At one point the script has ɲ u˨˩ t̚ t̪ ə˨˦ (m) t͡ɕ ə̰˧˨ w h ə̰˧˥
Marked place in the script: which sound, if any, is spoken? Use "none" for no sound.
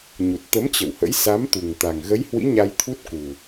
m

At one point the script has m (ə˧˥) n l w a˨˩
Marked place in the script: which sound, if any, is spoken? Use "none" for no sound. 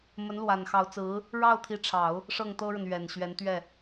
ə˧˥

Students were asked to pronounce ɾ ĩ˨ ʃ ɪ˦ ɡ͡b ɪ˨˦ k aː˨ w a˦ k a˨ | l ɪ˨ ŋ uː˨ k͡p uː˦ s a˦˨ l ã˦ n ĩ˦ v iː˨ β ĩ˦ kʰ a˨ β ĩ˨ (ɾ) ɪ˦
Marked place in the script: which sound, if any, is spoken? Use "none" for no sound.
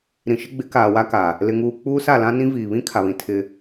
tʰ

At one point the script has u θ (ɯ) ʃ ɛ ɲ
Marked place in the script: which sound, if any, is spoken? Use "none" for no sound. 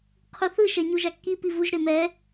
ɯ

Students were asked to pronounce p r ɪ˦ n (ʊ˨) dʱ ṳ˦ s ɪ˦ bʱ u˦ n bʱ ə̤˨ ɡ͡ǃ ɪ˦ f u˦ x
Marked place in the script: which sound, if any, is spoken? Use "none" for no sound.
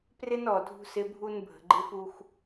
ɔ˨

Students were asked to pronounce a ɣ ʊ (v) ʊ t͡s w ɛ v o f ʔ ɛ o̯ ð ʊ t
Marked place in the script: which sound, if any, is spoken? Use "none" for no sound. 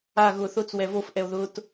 θ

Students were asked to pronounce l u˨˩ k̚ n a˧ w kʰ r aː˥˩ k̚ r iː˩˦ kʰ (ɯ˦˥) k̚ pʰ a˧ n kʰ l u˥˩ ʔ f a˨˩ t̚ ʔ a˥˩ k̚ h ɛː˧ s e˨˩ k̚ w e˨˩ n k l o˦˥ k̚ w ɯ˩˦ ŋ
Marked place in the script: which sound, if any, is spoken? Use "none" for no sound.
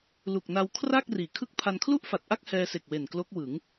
ɯ˥˩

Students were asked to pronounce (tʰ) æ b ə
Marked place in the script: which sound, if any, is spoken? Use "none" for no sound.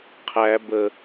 qʰ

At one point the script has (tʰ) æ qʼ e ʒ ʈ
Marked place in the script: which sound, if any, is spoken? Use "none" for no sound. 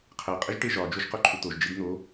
qʰ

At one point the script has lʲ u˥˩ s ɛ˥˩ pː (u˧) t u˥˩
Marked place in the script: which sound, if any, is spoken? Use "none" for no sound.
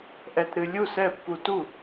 u˧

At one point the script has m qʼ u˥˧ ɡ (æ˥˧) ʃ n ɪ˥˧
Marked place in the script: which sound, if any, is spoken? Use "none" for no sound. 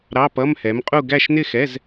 æ˥˧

